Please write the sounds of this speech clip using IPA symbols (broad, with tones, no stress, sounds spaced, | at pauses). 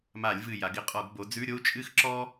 m a˧˩˧ lʲ v ɨ˧˩ j a˩˧ ɡ ɪ˥˧ qʼ ɔ˧˩˧ ɡ b o˩˧ d͡z ʉ˧˥˧ ɾʲ o˥ u̯ t͡ʃʼ ɨ˥˧ x ǁ ɔ˥